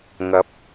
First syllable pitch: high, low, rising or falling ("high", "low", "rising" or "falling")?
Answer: rising